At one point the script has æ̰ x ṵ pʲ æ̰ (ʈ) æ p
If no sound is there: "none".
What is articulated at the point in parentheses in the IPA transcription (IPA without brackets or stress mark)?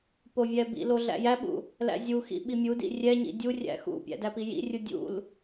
d